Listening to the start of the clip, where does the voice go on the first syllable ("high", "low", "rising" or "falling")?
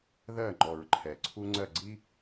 falling